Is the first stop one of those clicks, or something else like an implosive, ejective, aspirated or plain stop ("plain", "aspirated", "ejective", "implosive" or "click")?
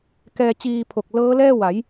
plain